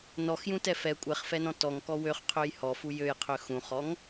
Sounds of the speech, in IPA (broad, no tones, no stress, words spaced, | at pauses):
nɔxjũtɛ fɛ kʷʼɛχfɛnɔ̃ tɔŋkɔ wøχqʰøj hɔfu jøjqʰø xũχɔŋ